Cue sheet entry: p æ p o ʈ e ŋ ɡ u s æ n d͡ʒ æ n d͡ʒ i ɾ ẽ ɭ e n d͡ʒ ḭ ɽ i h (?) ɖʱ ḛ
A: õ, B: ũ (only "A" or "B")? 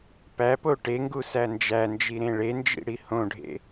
A